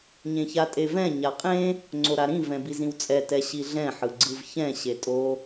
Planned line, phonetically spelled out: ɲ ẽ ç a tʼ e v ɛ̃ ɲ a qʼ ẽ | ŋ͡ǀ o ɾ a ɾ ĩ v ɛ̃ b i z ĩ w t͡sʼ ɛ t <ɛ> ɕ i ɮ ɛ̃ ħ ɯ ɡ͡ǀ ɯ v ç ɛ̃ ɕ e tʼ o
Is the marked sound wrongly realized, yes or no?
no